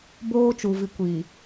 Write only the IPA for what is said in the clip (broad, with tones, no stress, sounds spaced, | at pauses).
b oː˦ t͡ʃ u˨ v i˨ kʷ iː˨